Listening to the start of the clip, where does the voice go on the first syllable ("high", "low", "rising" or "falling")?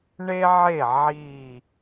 high